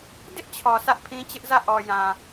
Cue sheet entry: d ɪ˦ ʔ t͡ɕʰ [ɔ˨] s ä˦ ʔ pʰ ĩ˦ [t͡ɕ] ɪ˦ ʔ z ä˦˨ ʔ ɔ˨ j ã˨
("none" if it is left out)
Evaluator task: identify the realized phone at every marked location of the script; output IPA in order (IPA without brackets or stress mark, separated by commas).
ɔ˨, t͡ɕ